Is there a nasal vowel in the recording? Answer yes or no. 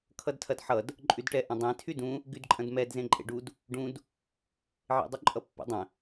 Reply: yes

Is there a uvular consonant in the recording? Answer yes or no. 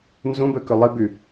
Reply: no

